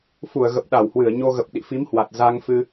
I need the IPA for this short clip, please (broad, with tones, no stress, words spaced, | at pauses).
fu˧˩ə̯ɣə˨˩p̚ɗa˧˩whwɨ˧˩ə̯ ɲo˧ɣə˨˩p̚ ɗḭ˧˨fi˨˦mhwa˨˩t̚ za˧ŋ fɨ˧